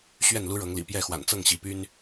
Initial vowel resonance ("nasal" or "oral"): oral